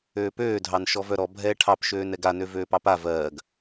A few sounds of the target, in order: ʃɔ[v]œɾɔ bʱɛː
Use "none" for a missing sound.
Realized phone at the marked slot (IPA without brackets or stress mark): v